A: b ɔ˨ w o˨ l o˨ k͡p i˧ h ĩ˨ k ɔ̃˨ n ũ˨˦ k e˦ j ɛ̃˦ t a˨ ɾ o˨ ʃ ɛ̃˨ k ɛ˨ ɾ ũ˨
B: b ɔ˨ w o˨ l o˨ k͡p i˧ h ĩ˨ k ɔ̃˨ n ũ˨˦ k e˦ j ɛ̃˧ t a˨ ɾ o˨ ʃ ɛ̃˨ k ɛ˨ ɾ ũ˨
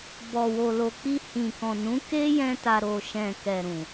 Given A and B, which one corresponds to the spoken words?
B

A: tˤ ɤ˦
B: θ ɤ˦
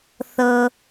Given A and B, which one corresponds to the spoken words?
B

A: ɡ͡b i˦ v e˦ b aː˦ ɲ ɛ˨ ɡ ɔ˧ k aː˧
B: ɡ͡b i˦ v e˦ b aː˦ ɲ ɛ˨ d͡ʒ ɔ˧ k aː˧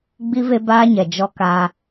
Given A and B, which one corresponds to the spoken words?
B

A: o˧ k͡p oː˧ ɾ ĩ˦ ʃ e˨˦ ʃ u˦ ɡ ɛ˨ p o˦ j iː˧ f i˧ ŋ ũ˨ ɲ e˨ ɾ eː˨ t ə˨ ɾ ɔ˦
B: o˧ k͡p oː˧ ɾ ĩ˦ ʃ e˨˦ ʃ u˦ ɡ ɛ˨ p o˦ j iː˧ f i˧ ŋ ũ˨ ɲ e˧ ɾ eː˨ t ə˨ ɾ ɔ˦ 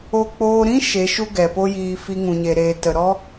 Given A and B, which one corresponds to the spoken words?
A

